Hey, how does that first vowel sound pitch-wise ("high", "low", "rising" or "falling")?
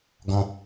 high